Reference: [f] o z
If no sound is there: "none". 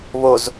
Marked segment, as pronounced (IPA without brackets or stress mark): β